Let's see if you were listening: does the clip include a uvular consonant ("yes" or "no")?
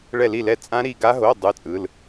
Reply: no